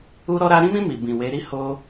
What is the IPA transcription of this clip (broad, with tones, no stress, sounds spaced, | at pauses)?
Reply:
u˧ ɾ ɔ˧ ɾ a˧ ɾ ĩ˧ m ĩ˧ m i˨ b ĩ˨ w e˨˦ ɾ i˦ h o˧